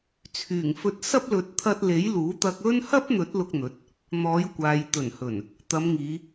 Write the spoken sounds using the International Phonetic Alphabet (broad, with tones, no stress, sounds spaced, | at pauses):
t͡sʰ yː˨˩ ŋ f ɵ˧ t̚ s ɐ˥ p̚ l ɵ˨˥ t̚ t̪ʰ ɐ˧ t̚ l e˨˥ j l uː˨˥ t̪ ɐ˧ k̚ ɵ˥ n h ɐ˥ p̚ n̪ ɵ˨˥ t̚ l ʊ˧ k̚ n̪ ɵ˨˥ t̚ | n̪ ɔː˨˧ j kʷ aː˨ j t̪ ɵ˨˩ n h ɵ˨˩ n | t̪ ɐ˨˧ m ŋ iː˨˧